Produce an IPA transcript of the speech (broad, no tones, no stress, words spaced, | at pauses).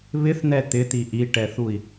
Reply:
βɪθn̪ɛ t̪ɪt̪i ʔiʈɛθui̯